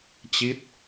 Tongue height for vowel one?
high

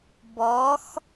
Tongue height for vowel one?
mid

